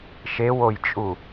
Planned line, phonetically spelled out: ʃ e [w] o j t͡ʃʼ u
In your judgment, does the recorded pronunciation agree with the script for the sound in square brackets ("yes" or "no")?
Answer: yes